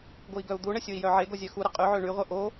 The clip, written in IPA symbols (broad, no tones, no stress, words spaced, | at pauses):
ɡoi̯ɡœu̯d̪uɳə sʲoi̯jœʕeɡo zʲœxuɾə qʼyʕø ɳyʁʷœ ʔo